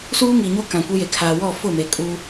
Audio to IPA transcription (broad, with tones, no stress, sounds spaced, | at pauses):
s uː˦ ŋ iː˨ ɲ o˦ k ã˨ kʷ e˦ j e˨ kʰ aː˨ w ɔ˦˨ f ʊ˦˨ m e˨ kʼ u˦